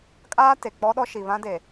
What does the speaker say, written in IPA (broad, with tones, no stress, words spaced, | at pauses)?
kʼaː˦ te˨ k͡pɔ˦ɗɔ˦ ʃi˨βã˦de˨